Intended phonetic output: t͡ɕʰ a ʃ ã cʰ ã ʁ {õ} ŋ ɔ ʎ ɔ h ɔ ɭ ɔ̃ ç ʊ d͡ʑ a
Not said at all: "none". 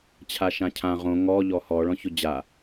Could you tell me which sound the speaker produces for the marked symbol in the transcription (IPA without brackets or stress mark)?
õ